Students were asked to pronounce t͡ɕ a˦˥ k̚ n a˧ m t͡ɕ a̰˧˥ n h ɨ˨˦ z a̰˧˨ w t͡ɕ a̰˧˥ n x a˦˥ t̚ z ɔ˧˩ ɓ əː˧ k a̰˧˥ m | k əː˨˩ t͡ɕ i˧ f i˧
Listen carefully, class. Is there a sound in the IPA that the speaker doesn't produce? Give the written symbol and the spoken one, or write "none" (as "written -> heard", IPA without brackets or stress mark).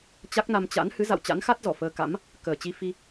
ɓ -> f